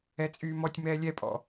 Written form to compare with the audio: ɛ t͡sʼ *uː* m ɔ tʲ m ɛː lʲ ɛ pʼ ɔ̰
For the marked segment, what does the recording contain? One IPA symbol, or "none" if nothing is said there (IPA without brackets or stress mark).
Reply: yː